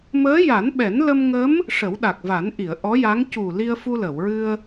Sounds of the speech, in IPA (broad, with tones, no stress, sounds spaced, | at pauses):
m əː˧˥ j a˨˩˦ n ɓ ɛ˨˩˦ n l ə˧ m ŋ ə˧˥ m | ʂ ə˨˩˦ w ɗ a˨˩ k̚ v a˨˩˦ n ʔ i˨˩˨ ə̯ ʔ ɔ˧˥ j a˧˥ ŋ c u˨˩ l i˧ ə̯ f u˧ l ə˨˩˨ w ɹ ɨ˧ ə̯